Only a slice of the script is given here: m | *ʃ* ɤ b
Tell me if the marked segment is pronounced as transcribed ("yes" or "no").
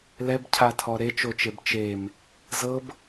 no